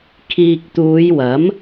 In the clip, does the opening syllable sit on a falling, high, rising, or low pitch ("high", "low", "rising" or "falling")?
low